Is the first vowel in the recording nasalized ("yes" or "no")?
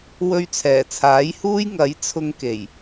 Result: no